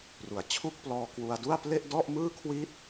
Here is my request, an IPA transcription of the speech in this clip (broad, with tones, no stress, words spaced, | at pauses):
ru˩˦a̯t͡ɕʰu˥˩k̚ plɔː˧kwu˧a̯du˥˩a̯ple˥˩ʔ dɔ˥˩ʔmɯː˥˩ kʰwi˥˩t̚